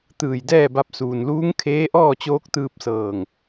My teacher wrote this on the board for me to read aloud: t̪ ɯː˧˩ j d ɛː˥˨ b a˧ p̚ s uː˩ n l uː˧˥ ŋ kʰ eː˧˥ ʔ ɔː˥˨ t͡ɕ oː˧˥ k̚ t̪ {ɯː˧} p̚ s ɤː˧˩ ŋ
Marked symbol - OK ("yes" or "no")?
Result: yes